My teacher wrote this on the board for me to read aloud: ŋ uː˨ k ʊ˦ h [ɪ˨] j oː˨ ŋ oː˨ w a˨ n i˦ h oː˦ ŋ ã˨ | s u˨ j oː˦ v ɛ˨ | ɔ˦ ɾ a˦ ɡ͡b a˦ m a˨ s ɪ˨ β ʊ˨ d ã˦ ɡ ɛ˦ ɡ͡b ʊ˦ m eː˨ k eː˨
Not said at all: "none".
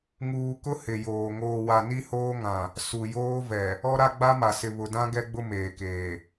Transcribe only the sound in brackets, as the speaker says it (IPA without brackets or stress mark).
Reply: ɪ˨